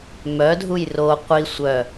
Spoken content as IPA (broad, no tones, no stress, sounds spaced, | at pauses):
m œ dʱ u j r o qʷ i sʷ œ